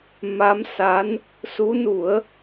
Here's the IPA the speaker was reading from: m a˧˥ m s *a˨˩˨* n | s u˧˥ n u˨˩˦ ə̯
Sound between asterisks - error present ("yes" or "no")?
yes